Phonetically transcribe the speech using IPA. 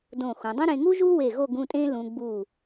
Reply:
d õ˧˩ x ũ˩˧ dˤ ũ˥ ɾ ẽ˧ ŋ u˥ ʒ u˥ w e˧˩ ɣ o˥˧ ɡ ũ˥˧ tʼ ẽ˥ l ũ˧ ɡ͡b u˧˩

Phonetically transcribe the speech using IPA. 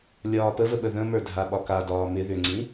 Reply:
lʲ ɒː p ə v ə ɓ ə ð ə̃ m ə˞ dʱ a ɓ ɒ k a d ɒː m ɪ ð ʏ ŋ͡ǀ ĩ

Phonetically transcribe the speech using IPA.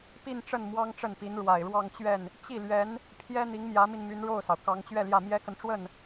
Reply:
p i˥˧ n ʈ͡ʂ ə˥˩ n m w ɑ˥ ŋ ʈ͡ʂ ə˥˩ n p i˧˥ n ɻ w a˨˩ ɪ̯ ɻ w ɑ˥˧ ŋ t͡ɕ ɥ ɛ˥˩ n | t͡ɕ i˥˩ l ɥ ɛ˧˥ n | pʰ j ɛ˥ n̪ i˧˥ ŋ m j ä˧˥ m i˧ n m y˧˥ n ɻ o˥˩ ʊ̯ s ɑ˩ ʊ̯ k ɑ˧˥ ŋ t͡ɕ ɥ ɛ˥˧ l j ä˥˩ m j ɛ˥ k ə˨ n ʈ͡ʂ w ə˥˩ n

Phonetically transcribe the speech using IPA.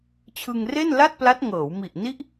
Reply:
t͡ɕʰ ɯ˧ ŋ r e˥˩ n l a˥˩ t̚ p l a˦˥ t̚ ŋ ɤː˩˦ w m i˨˩ ʔ n i˦˥ ʔ

